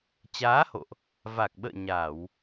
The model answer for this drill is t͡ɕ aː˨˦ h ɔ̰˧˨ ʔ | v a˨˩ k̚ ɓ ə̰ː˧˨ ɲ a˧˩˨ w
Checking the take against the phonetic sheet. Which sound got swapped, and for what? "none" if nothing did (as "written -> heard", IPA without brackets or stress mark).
ɔ̰˧˨ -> o̰˧˨